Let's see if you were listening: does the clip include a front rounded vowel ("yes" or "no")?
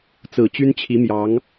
yes